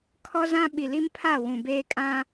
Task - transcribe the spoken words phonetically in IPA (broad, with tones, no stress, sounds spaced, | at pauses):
kʰ ɔ˦ z ã˦ ɓ i˨ l i˦ m pʰ a˦˨ w ũ˨ b eː˦ kʼ ã˦